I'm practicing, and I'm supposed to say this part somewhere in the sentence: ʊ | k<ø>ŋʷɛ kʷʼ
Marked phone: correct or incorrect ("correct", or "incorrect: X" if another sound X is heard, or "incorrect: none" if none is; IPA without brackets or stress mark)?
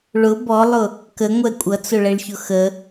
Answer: incorrect: ə